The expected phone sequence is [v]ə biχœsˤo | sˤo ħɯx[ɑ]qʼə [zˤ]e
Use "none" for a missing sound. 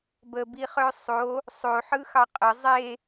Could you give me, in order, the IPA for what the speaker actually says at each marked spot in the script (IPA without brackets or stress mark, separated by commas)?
b, ɑ, zˤ